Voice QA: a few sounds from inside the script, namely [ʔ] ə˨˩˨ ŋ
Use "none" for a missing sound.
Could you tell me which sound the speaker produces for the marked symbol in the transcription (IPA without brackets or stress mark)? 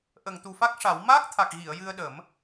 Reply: ʔ